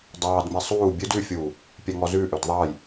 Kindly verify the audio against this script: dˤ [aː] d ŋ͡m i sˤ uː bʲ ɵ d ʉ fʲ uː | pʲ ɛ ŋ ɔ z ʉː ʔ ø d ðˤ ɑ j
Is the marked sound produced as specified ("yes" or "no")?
no